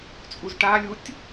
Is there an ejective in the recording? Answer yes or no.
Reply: yes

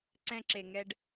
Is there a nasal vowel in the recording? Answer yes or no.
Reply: yes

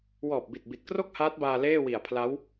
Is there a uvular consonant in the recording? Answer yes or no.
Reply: no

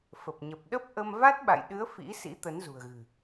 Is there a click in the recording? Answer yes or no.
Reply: no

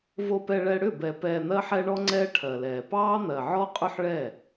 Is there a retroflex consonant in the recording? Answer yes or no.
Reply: yes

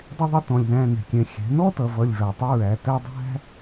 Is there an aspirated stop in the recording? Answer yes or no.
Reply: no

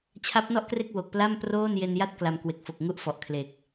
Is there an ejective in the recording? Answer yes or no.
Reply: no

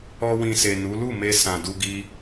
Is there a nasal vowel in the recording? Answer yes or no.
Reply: yes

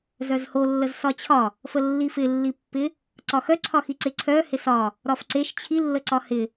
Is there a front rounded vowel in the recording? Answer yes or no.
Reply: yes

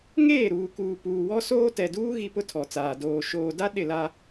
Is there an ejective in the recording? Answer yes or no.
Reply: no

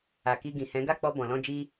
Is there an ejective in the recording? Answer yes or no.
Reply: no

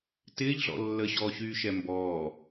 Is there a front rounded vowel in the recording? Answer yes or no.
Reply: yes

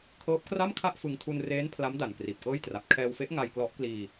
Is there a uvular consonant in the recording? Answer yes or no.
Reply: no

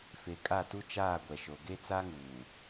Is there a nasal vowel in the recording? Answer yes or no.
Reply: no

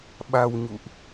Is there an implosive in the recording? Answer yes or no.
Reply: yes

